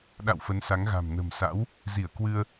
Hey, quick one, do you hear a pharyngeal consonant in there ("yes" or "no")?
no